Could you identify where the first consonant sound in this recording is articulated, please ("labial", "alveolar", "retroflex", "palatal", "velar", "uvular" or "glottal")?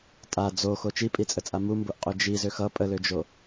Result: alveolar